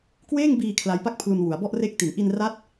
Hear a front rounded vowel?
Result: no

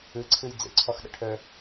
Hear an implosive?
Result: yes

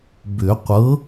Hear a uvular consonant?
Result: yes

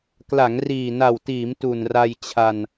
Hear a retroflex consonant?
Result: no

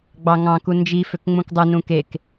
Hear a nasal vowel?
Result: yes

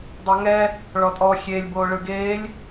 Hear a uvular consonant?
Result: no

